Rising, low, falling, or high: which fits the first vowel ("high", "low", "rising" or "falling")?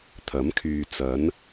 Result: rising